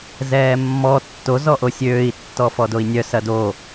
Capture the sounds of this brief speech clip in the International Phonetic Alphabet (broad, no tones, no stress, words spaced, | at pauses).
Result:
zɛːmːɔ tːo zɔʔosʲøːi̯ tːɔfɔdoi̯nʲœ sɐdo